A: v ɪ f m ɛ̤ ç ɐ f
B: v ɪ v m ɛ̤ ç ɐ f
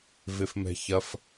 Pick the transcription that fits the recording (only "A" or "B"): A